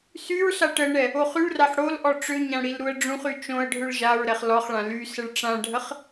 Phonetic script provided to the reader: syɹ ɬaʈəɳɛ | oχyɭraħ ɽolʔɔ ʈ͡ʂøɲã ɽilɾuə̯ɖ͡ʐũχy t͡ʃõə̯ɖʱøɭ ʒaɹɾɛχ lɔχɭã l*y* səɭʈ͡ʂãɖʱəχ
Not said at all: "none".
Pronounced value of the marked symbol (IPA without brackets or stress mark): y